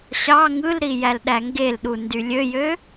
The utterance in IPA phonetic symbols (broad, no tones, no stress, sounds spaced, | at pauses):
ɕ ɑ ŋ ɯ l ɾ i j æ l ɗ æ ŋ ɡ e l ɗ u n d y lʲ ø j ø